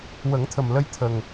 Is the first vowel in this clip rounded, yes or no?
no